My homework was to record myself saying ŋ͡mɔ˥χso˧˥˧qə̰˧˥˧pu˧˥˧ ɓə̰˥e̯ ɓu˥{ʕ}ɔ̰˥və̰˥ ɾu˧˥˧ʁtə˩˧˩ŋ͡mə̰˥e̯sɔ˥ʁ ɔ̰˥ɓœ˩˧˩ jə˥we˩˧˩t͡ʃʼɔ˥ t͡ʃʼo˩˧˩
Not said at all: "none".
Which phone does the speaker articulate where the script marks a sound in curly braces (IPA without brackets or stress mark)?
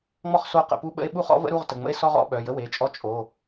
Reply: χ